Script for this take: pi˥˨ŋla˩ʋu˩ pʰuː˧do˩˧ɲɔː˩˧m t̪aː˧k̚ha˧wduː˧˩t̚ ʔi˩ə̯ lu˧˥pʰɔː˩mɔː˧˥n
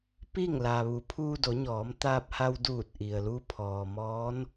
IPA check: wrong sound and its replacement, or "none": k̚ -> p̚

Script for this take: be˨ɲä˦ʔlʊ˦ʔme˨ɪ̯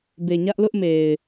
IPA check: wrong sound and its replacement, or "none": none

